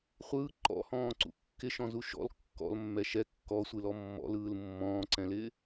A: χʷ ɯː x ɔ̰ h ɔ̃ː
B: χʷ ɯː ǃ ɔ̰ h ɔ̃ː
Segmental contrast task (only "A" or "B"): B